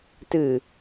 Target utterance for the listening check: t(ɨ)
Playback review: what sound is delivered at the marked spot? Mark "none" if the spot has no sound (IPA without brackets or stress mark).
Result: ɨ